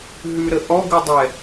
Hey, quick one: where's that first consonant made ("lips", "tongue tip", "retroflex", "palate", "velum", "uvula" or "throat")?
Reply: throat